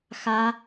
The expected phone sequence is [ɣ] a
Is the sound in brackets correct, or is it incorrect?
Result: incorrect